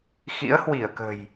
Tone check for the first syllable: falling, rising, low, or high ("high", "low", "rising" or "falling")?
rising